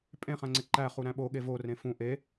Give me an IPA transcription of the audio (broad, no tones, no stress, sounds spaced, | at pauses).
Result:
pʼ ẽ χ æ̃ ŋ͡ǀ e ǃ æ χ u ɾ æ̃ ɓ o ɠ e v o r ẽ f ũ ʔ e